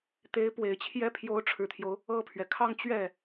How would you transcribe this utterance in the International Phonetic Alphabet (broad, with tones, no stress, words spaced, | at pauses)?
t̪e˧˥ɪ̯pwe˨˩ɪ̯ t͡ɕʰjɛ˥ pʰjo˧˥ʊ̯ʈ͡ʂʰɻ̩˨˩t̪ʰjo˦ʊ̯ | ɤ˥˩pʰɥɛ˩ kʰɑ˥˧ŋt͡ɕɥɛ˥˩